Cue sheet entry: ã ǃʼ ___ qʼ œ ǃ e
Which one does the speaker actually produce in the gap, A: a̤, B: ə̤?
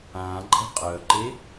B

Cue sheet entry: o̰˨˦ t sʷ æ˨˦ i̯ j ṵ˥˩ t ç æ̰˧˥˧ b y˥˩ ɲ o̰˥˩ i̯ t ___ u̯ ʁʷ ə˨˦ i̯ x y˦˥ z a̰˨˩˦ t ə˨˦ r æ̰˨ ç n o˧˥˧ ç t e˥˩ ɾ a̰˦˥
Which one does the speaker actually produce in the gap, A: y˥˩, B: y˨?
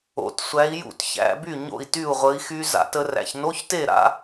A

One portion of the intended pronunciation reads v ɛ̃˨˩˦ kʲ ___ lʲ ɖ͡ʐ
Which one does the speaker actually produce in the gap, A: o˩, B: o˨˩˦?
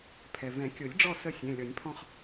B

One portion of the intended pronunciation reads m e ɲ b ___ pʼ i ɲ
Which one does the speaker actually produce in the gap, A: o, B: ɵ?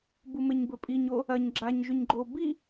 B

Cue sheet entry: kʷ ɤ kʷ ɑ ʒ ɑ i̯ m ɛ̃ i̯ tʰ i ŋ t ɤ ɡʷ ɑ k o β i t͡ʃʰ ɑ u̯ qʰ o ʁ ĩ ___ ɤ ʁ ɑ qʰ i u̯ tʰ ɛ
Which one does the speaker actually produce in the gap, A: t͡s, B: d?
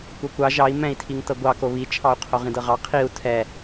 B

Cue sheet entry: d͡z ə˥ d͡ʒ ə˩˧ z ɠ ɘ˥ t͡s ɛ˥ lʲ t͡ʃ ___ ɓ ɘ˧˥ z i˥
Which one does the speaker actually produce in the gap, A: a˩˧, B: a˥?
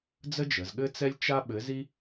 B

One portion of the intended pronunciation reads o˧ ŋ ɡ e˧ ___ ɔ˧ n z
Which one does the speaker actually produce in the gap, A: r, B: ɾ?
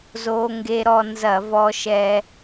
B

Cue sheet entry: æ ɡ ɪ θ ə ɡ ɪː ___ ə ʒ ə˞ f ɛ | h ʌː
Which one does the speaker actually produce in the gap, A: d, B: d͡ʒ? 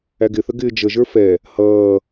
B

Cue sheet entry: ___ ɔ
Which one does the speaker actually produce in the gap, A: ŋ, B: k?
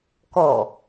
B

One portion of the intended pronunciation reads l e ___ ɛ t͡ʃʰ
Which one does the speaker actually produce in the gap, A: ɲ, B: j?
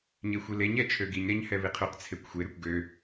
A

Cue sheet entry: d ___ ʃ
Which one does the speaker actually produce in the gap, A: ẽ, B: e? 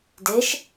B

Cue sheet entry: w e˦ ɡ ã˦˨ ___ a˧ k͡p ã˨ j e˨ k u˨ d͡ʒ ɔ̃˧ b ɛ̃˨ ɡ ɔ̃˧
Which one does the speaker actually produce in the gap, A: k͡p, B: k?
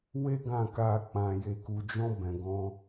B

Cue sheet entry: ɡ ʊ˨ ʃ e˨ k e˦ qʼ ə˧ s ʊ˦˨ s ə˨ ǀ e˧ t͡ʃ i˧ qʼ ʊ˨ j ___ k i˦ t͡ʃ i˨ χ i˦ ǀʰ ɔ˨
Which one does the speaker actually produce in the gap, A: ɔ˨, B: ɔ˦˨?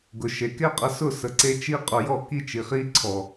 B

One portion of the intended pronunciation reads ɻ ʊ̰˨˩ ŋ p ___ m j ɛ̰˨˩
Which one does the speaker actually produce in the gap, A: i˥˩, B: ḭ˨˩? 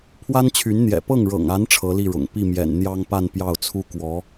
A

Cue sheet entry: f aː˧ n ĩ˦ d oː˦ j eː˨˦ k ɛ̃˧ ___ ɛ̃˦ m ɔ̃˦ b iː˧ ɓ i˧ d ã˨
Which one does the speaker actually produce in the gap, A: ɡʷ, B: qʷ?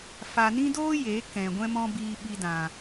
A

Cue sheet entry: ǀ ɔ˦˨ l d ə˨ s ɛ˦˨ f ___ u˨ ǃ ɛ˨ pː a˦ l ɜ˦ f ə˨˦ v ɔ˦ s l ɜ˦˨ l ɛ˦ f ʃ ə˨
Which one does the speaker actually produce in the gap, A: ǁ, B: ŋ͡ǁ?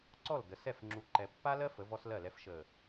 B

